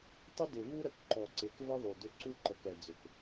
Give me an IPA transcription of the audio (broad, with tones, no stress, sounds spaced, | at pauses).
tˤ ɪ˦ d ɪ˨ v u˦ ɾ ə˨ k ǃ ɔ˨ ǀ ɪ˨˦ k v ə˦ ðˤ u˨ d ʏ˦ ǀ u˦ ǃ ə˨ k ɛ˨ d͡z ʏ˨ k